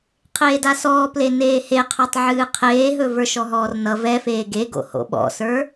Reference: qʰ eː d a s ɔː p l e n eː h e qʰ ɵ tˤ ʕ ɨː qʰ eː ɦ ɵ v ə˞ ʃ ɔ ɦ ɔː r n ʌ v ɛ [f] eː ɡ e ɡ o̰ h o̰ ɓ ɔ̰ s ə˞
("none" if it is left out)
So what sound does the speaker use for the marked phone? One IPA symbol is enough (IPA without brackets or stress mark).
f